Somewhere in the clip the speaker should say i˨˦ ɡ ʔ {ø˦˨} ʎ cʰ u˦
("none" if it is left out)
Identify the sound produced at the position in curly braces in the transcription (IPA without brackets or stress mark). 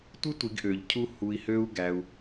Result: ø˨